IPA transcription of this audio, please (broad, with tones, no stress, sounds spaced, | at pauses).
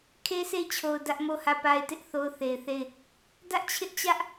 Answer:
kʰ e˦ s e˦˨ ɪ̯ t͡ɕʰ o˨ ʊ̯ d ä˦ ʔ m o˦˨ h ä˦˨ p a˦ ɪ̯ t ɪ˦ ʔ θ o˦ ʊ̯ θ e˨ ɪ̯ θ e˦˨ ɪ̯ | d ä˦ ʔ t͡ɕʰ ɪ˦ ʔ t͡ɕ ä˦ ʔ